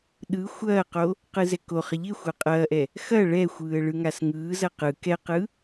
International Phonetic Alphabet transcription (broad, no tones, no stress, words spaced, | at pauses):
ɗɯ xʷɐːqo | qɯzɛkoχɪ ʎɪ xʷaqʼɐːʔɛ | xɐ ɭɛxʷɯːə̯ ɭɯŋasŋɯːzɐ qɯ kɛqɯ